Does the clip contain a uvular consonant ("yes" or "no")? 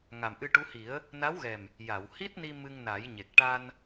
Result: no